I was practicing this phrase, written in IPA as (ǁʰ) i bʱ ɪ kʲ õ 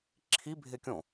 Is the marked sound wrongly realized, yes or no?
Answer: no